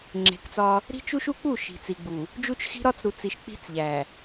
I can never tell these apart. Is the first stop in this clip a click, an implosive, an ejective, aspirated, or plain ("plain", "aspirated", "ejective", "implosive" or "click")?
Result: click